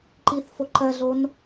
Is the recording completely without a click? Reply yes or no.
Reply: no